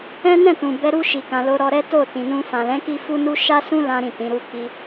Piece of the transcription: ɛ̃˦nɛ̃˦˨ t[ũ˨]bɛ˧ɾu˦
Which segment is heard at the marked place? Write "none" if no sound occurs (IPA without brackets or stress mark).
ũ˨